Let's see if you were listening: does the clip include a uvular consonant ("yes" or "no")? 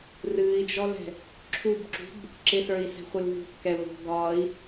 yes